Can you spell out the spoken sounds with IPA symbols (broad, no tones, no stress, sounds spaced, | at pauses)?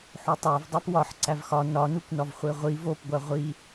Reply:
ħ o tˤ æ v dˤ æ p w ɒ ħ ǀ æ v x ɒ n ɒ n u kʷ n ɒ v χʷ e ʁʷ i v o p ɡʷ æ ʁʷ i